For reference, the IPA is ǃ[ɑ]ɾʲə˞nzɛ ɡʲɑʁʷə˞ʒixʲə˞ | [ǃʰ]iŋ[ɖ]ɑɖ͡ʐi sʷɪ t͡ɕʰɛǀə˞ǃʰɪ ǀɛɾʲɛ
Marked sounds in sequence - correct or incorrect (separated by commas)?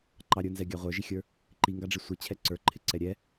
correct, incorrect, incorrect